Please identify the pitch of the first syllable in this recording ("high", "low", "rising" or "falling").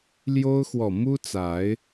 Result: high